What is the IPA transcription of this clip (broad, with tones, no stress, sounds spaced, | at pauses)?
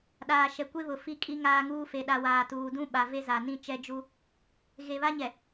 ɗ aː˨ ʃ ɛ˨ kʷ e˦ β ʊ˨ f i˦ kʼ i˦ ŋ aː˦ ŋ uː˦ f e˨ ɗ a˨ w aː˨ t uː˨ d ũ˦ ɓ a˨ v e˦ z a˨ n ĩ˦ t͡ʃ ɛ˦ d͡ʒ u˦ | ɣ e˨ β a˦ ɲ ɛ˨